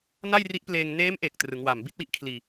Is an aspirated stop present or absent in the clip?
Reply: present